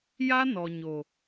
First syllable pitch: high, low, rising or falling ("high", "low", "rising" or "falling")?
high